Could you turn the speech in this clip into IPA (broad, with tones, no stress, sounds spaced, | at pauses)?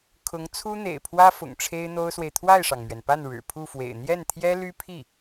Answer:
kʰ ʊ˧˥ ŋ t͡sʰ u˥ n̪ ḛ˨˩ ɪ̯ pʰ w ä˥ f ʊ̰˨˩ ŋ ʈ͡ʂʰ e˥ ɪ̯ n̪ o˥ ʊ̯ s w e˨ ɪ̯ t̪ʰ w a˥˩ ɪ̯ ʂ ɑ˩ ŋ m ɥ ɛ˩ n p a˥˩ n ɻ ɻ̩˨˩ pʰ u˥˩ f w ḛ˨˩ ɪ̯ n̪ j ɛ˥˩ n t̪ʰ j ɛ˥ l y˥ pʰ i˥˩